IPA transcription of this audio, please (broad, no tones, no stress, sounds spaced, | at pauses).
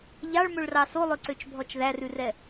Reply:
ʎ ɑ ɭ m ɵ ɭ r ɑ s o lˠ ø ǀ ø t͡ʃ bʱ ɔ t͡ʃ ð æ r ʉ r ɛ